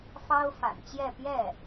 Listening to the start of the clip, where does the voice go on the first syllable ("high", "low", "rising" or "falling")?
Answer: high